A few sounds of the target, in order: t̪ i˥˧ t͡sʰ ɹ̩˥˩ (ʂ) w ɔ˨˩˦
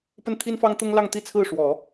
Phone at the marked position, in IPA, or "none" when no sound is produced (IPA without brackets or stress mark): ʂ